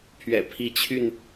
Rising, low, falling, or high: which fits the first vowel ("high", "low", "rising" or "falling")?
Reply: low